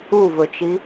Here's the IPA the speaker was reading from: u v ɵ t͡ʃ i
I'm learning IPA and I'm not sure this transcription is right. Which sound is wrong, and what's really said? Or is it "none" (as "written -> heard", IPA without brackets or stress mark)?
none